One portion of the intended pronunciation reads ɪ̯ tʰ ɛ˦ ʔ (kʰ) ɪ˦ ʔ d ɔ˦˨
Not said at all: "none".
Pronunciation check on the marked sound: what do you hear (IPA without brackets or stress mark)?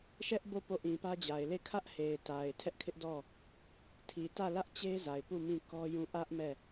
kʰ